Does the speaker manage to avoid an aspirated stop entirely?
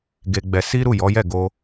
yes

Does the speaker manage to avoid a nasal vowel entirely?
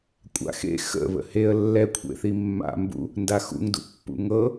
yes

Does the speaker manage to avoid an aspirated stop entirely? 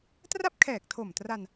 no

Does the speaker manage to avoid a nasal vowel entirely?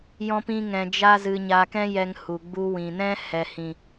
no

